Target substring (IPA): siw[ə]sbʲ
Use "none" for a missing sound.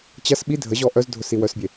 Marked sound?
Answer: œ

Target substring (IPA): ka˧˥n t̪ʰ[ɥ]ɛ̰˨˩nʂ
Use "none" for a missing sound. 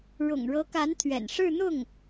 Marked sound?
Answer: ɥ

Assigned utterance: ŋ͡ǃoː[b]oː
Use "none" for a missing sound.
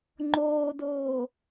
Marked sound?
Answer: d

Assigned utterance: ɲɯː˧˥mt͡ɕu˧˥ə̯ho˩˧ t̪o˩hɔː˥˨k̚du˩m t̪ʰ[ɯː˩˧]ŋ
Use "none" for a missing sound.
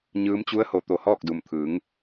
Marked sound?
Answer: ɯː˩˧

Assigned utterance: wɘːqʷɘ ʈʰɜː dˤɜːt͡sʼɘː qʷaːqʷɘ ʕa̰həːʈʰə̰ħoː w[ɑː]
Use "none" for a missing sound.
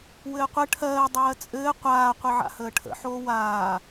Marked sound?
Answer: aː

